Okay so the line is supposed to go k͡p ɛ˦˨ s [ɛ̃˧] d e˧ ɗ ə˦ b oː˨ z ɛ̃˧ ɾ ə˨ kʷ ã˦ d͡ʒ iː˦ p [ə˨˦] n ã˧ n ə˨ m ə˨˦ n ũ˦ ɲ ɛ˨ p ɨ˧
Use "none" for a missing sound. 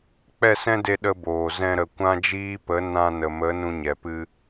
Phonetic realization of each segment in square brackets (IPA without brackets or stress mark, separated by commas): ɛ̃˦, ə˨˦